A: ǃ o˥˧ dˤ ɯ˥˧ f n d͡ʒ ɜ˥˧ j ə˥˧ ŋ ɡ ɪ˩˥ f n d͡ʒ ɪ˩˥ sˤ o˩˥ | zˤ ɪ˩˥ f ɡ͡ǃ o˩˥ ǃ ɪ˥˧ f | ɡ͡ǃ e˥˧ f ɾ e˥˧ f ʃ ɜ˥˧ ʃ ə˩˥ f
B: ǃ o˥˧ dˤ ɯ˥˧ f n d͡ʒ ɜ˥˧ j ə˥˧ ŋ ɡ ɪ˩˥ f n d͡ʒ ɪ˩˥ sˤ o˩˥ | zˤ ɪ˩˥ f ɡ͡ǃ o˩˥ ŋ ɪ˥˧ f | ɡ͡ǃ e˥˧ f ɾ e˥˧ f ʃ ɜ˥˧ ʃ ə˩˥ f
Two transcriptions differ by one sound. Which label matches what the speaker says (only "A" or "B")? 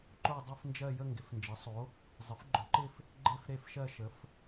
A